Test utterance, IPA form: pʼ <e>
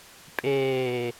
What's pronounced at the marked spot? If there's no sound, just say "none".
eː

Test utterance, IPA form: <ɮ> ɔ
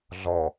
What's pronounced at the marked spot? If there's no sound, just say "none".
ɮ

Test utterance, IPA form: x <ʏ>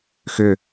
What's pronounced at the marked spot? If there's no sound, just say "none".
ʏ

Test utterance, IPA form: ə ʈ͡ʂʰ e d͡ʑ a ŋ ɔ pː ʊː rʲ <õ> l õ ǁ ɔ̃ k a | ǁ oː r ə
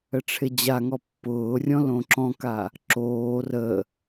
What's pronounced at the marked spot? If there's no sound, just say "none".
ɔ̃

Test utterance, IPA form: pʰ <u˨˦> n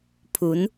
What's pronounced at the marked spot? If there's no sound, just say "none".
u˨˦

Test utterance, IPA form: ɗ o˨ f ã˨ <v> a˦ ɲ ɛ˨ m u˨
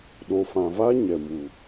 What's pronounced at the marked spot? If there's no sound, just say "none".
v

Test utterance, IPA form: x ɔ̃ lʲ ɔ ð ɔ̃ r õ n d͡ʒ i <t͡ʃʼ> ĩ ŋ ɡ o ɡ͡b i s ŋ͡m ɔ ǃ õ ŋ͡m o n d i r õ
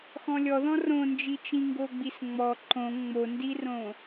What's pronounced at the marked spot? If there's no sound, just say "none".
t͡ʃ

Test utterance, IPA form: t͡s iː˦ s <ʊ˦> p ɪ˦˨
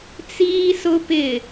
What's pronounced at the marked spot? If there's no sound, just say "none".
ʊ˦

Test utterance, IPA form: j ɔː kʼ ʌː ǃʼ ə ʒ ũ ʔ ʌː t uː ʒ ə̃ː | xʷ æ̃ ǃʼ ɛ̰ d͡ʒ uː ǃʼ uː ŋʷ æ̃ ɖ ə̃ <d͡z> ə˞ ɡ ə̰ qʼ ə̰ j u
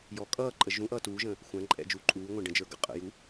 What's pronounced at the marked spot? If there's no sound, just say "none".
d͡ʒ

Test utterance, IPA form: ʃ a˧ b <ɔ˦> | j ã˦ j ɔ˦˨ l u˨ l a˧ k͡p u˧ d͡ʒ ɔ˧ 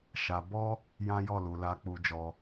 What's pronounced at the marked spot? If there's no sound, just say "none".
ɔ˦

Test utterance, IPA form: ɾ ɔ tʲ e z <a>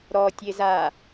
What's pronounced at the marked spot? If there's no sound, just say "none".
a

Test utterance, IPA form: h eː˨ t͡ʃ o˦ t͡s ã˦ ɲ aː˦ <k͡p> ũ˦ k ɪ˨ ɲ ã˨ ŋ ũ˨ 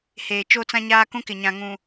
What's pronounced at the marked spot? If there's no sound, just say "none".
k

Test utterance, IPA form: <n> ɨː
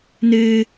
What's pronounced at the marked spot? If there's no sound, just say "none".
n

